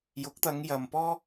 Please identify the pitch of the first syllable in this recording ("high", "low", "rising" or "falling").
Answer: rising